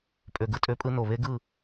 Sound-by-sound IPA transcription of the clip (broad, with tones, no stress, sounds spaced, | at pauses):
pʼ ø˨ ɡ ɯ˨ tʼ ø˧ pʼ ɯ˧ n o˨ β e˦ ɡ ɯ˦˨